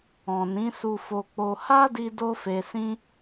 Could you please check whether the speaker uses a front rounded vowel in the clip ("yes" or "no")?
no